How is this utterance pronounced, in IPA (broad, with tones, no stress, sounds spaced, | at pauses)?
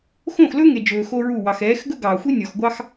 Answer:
x õ˦˨ x l ɵ˦ ŋ e˨ d͡ʒ ɵː˨ x o˦ ɹ u˦˨ w ɑ˨ x ɛː˨˦ x ɡ ɵ˦ ɡ ɑː˨ xʷ i˦ nʲ ɔ˨ x ɡʷ ɑ˦ x